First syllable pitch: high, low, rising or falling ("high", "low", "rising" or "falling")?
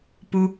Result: low